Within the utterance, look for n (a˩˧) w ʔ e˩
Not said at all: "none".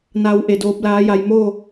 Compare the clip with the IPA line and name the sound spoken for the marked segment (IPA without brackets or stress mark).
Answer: a˩˧